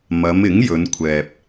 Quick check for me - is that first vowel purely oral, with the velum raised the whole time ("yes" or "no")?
yes